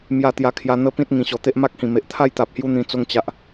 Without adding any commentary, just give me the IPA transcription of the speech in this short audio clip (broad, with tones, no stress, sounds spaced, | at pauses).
m j a˥˧ t̪ j a˧ kʰ j a˧ n̪ ə˦ p ĩ˦ t̚ ŋ ĩ˨˩ ɕ ɔ˨˩ t̪ e˦ ʔ m a˦ k̚ h ĩ˨˩ m e˨ ʔ t̪ʰ a˥˧ j t̪ a˨ p̚ h j u˧ n̪ ĩ˧ t͡s o˧ ŋ t͡ɕ a˨ ʔ